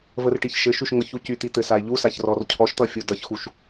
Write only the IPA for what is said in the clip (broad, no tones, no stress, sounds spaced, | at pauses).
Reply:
v ə r ʈ i ç ʃ ɘ ʃ y ʃ ŋ ɤ ç u c y t̪ i t̪ ɘ s a e̯ ʎ u s a ç r ɔ r cʰ ɔ ʃ t̪ ʌ fʲ u d ʌ ç x u ʃ